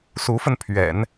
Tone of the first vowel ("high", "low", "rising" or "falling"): rising